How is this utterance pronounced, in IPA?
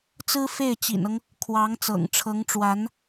t͡s ɹ̩˥ f e˥˩ ɪ̯ t͡ɕ ḭ˨˩ n ɤ˦ ŋ | kʰ w ɑ˧˥ ŋ t͡s ɤ̰˨˩ ŋ ʈ͡ʂʰ ɤ˧˥ ŋ ʈ͡ʂ w a˧˥ n

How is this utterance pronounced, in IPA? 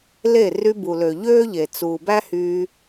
l e˦˨ r y˧ b u˨ l ø˨ ʎ øː˦ ʎ e˨ t͡s uː˨ b æ˦ h yː˧

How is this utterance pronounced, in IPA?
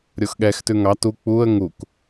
ɾʲ o x ɠ ɛ x t ʉ ŋ ɑ t u k͡p u ə̯ ŋ u k

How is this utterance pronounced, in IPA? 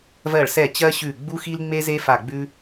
v ɜ˧˩ ɭ s ɛ˧˩ t͡ɕ ɜ˦ ɕ ʉ˧˩ ɡ͡b u˦ x i˦ l ŋ͡m e˦ z e˦ f a˧˩ ɡ͡b ʉ˦

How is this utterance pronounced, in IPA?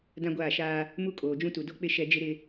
d ã˦ ɡʷ aː˦˨ ʃ aː˦ | m u˦ kʼ oː˨ d͡ʒ ũ˦ t u˨ d o˦ k͡p ɪ˦ ʃ ɛ˦ d͡ʒ ɪ˦ ɾ ɪ˦

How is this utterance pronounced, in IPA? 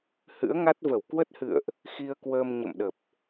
h ɨ̰˧˥ ə̯ ŋ a˦˥ t̚ v ə˧˩ w k w ə˦˥ t̚ h ɨ̰˧˨ ə̯ ʔ | x i˧ ə̯ k w əː˧ m ɲ ə̰˧˨ m ɗ ə˨˩ p̚

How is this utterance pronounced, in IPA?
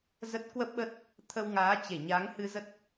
z ə˦˥ t̚ k w ə˦˥ p̚ ɓ ə˦˥ t̚ | t̪ʰ ə˧ w ŋ aː˨˦ t͡ɕ e˧˩ ɲ a˨˦ ŋ h ɨ˧ z ə˦˥ t̚

